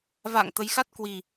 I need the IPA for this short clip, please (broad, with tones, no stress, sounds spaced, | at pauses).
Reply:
v a̰ː˧˨ ŋ t̪ ə˨˦ j x a˦˥ t̚ k w i˨˩